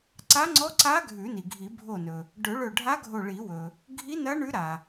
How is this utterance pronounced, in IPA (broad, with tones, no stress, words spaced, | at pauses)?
ǀa˧˥ŋ͡ǀɔ˧˥ǀa˧˥ ɡʱʉ˨˩˦ni˩ɡʱi˨˩˦ bʱo˧˩nɵ˩ | ɖɵ˨˩˦ɭɵ˧˩ɖʱa˧˥ ɡʱo˧˩ɭi˨˩˦wɵ˩ | ɡʱi˧˥ nɐ˧˥ ɳʉ˧˥ɾa˩